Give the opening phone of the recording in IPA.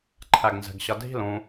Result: ǃʰ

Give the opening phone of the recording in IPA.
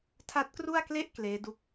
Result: tʰ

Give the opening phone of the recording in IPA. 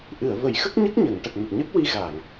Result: ʔ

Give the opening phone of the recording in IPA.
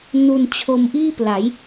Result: n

